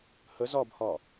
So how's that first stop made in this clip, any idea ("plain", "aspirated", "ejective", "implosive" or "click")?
plain